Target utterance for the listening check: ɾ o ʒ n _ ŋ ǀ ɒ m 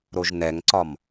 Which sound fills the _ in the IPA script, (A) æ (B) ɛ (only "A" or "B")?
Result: B